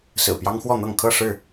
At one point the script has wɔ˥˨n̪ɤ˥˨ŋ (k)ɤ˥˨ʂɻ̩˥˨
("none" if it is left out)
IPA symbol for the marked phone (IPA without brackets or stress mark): kʰ